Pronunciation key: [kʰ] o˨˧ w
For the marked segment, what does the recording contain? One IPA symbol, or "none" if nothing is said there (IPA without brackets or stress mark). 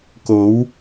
k